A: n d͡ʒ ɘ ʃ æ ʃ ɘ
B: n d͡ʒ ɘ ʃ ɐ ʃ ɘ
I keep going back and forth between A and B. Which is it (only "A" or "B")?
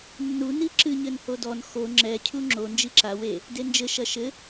B